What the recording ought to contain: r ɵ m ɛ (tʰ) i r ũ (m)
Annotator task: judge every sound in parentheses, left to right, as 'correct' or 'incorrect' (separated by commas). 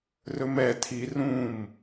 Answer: correct, correct